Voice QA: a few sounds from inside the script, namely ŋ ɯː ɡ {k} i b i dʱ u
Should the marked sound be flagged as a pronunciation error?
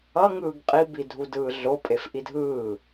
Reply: yes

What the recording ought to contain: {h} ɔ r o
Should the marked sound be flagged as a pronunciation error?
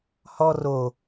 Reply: no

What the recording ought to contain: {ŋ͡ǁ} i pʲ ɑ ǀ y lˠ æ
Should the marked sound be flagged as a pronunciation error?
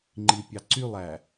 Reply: yes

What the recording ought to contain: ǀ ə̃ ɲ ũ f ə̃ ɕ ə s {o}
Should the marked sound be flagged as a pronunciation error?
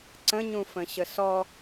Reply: yes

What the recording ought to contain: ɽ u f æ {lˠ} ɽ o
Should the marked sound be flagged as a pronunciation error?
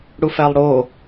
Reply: no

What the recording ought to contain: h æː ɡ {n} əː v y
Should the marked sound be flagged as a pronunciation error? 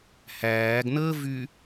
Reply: no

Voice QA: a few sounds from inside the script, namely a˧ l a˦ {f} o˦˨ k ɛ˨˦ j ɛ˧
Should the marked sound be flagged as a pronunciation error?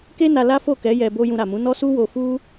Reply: no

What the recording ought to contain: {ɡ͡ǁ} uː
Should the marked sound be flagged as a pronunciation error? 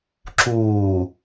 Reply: yes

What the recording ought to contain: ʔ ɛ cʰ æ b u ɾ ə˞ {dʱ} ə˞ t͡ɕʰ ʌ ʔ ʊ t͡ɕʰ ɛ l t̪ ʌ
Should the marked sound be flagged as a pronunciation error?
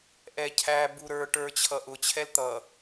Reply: yes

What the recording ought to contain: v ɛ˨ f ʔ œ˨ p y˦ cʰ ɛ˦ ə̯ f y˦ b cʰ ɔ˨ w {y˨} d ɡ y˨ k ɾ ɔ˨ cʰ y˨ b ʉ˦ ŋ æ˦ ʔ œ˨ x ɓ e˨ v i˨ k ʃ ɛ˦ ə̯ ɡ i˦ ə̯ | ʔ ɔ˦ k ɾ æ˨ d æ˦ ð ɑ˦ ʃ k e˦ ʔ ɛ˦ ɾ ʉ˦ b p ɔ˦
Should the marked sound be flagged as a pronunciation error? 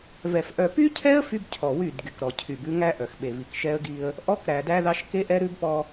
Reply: yes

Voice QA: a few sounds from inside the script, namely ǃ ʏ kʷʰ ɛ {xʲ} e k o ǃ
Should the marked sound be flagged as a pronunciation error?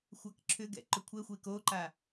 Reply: yes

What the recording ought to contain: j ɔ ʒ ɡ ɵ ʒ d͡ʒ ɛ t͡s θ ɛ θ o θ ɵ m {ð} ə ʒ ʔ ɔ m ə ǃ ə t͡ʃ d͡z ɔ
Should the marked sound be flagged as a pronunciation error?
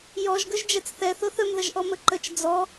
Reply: no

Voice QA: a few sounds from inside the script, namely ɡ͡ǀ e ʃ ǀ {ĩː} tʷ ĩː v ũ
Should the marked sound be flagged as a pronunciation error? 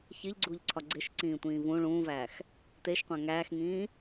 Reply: no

